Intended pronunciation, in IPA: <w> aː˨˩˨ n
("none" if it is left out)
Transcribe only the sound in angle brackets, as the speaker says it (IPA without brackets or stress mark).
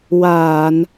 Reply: w